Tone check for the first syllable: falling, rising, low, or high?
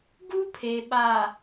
high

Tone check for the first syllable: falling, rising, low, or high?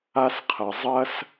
high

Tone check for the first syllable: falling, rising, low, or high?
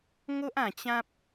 high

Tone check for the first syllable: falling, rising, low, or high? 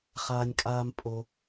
low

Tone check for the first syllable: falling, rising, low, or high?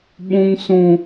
high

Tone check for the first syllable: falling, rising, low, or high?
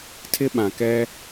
high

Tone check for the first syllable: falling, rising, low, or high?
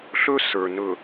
high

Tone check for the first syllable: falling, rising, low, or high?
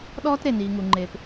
high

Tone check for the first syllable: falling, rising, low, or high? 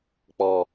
low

